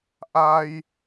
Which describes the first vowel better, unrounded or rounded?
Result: unrounded